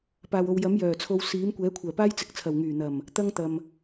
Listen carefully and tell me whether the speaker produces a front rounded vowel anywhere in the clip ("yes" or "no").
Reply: yes